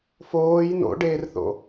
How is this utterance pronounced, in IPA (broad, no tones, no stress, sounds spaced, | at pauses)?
f oː j n o̰ ɖ eː r θ o̰